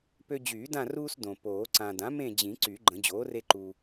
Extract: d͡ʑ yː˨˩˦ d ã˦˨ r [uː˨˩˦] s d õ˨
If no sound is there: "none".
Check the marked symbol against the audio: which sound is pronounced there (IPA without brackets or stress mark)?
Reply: uː˦